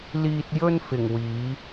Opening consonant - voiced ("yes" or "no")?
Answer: yes